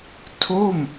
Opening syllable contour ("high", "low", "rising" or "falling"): falling